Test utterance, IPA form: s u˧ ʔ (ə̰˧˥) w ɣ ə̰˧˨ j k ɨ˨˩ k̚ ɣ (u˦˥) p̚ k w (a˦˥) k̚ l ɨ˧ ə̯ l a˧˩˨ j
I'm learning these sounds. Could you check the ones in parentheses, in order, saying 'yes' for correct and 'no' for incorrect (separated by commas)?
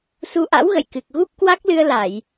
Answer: no, yes, yes